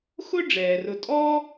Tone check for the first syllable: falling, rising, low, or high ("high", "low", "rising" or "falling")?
high